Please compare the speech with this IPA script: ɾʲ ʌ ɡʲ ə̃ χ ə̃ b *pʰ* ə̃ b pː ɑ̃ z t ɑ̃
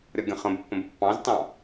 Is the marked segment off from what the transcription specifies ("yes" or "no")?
yes